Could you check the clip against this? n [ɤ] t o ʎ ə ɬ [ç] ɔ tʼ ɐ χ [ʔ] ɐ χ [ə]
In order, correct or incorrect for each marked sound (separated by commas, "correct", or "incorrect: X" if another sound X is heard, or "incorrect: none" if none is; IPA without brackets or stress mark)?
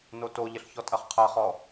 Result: incorrect: o, correct, incorrect: qʰ, incorrect: ɔ